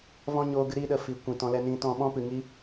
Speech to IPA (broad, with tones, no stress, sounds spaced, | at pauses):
v ɔ̃˦ ɲ oː˧ ɡ ɨ˨˦ ɾ i˦ ɗ ə˧ f i˨ kʷ ĩ˨ t ɔ̃˧ l ɛ˧ n ĩ˧ t ɔ̃˧ ɓ ɔ̃˦ p ɨ˨ ŋ i˧